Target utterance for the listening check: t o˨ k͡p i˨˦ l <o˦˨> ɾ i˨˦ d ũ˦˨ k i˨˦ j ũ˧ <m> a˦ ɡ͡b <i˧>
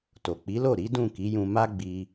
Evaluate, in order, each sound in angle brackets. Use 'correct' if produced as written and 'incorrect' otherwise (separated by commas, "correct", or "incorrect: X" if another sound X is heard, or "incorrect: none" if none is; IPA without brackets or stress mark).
correct, correct, correct